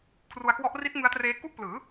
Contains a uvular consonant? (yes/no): no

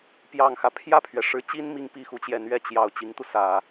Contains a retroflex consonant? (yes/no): yes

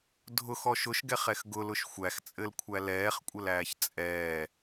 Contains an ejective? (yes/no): yes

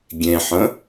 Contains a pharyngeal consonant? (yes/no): yes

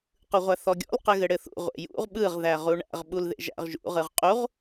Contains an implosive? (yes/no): yes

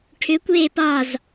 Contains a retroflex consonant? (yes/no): yes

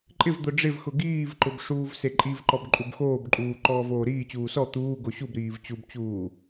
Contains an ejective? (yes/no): yes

